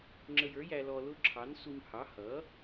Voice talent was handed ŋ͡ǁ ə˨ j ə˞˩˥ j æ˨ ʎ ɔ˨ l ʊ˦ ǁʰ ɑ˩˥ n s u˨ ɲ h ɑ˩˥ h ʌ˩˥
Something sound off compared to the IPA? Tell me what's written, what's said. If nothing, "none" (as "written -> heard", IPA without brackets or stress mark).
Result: ʎ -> l